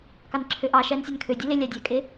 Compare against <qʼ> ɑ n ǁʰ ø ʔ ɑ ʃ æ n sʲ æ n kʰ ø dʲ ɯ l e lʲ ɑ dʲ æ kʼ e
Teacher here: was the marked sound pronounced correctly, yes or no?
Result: no